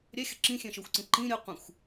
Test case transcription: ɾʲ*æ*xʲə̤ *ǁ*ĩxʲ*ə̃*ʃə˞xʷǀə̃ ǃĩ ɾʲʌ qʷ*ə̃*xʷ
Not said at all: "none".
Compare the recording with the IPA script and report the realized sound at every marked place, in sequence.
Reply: æ, ǁ, ɛ̃, ɛ̃

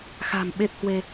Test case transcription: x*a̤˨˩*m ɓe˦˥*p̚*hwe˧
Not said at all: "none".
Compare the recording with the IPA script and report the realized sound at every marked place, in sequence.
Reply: a̤˨˩, p̚

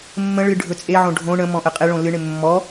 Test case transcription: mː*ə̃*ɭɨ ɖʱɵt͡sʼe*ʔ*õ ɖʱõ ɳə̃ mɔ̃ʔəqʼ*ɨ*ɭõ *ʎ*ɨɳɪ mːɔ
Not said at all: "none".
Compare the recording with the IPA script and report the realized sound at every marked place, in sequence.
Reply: ə̃, ʕ, e, l

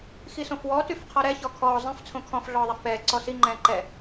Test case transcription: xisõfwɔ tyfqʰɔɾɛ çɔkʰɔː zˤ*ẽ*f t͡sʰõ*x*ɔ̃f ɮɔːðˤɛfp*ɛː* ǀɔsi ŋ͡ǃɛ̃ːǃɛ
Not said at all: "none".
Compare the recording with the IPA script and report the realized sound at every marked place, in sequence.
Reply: ẽ, kʰ, ɛː

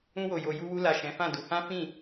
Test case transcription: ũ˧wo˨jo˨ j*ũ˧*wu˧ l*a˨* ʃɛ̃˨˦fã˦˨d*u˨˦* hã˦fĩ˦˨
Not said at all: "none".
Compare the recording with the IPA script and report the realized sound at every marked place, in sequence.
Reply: u˧, a˨, u˨˦

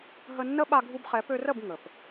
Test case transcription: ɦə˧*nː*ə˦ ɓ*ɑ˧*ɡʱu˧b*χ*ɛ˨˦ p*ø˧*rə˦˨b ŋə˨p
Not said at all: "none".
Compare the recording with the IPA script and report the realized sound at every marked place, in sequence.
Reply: nː, a˧, χ, ø˧

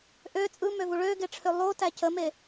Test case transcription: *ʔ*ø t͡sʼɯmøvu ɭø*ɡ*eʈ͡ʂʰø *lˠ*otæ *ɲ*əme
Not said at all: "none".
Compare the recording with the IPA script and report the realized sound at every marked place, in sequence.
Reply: ʔ, ɡ, lˠ, c

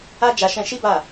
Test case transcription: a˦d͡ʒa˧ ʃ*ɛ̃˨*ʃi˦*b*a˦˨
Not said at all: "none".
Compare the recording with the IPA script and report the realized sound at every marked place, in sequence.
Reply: ɛ̃˧, b

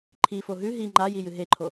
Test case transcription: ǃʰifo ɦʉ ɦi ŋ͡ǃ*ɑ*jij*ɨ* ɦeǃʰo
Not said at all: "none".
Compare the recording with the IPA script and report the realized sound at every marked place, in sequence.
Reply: a, ɨ

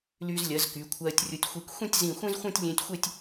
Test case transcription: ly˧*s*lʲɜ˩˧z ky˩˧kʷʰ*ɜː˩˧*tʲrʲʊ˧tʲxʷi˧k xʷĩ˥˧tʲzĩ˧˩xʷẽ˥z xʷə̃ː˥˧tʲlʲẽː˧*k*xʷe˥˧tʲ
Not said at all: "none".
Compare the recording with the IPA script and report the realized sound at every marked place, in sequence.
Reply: z, ɜː˧, tʲ

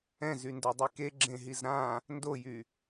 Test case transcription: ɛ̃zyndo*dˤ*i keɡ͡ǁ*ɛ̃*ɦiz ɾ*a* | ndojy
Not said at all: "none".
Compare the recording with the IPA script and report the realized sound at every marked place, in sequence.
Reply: dˤ, ẽ, ã

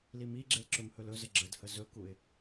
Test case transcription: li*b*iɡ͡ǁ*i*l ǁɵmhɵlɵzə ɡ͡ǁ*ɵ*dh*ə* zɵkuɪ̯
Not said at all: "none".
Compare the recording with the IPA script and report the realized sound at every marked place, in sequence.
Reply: m, e, ə, ə

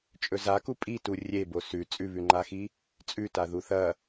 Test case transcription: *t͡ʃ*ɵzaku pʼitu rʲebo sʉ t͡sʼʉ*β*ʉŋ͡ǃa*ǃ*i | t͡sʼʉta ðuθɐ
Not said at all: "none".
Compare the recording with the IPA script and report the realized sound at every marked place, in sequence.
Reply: t͡ʃʼ, β, x

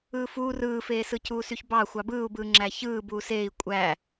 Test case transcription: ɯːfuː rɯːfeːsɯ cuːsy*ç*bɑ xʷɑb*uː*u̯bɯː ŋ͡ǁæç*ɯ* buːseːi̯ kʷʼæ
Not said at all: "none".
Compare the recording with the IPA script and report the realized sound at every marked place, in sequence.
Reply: ç, ɯː, ɯː

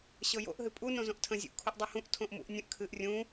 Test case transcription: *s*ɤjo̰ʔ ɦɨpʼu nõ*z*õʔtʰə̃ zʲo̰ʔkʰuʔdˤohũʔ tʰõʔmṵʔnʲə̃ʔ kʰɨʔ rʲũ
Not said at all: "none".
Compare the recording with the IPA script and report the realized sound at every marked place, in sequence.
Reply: ɕ, z

